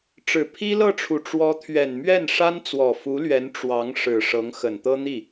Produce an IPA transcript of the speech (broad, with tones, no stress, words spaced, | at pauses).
ʈ͡ʂɻ̩˨˩pʰi˥lɤ˥˩ʈ͡ʂʰu˨˩ ʈ͡ʂwɔ˧˥t̪ʰɥɛ˨˩nmɥɛ˥˩n ʂa˥nt͡swɔ˨˩fu˧˥lɥɛ˧˥n ʈ͡ʂwɑ˧˥ŋ ʂɻ̩˨˩ ʂɤ˧˥ŋxə˨˩nt̪ɤ˥n̪i˥˩